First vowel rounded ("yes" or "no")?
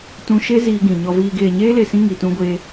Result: yes